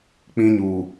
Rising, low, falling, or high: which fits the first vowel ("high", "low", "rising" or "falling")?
high